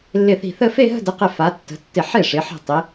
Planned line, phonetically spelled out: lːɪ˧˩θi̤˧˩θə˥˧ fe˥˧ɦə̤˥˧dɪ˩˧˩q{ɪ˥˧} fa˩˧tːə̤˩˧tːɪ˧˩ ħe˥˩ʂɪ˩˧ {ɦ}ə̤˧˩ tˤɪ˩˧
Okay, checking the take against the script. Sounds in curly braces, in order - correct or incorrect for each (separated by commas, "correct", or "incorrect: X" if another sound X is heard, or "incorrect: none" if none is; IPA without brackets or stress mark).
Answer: incorrect: ɪ˧˩, incorrect: ħ